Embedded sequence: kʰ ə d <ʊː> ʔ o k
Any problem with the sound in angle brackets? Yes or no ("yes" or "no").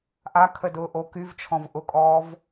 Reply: no